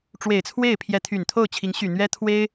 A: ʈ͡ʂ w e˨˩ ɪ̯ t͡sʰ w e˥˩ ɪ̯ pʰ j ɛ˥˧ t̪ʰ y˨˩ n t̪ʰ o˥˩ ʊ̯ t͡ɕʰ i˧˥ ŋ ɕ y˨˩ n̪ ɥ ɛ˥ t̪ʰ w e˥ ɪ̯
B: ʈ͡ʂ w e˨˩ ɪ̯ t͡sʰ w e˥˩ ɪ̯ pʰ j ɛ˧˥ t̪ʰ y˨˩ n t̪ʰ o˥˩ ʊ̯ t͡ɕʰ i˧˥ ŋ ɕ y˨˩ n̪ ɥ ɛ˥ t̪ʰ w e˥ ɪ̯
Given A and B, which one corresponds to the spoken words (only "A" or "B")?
B